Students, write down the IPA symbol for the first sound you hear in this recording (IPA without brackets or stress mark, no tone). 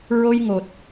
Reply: ɹ